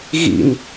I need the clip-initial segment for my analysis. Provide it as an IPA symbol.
ɣ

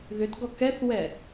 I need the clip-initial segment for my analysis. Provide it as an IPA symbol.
ð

